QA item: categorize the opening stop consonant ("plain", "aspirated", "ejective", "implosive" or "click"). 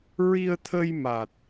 aspirated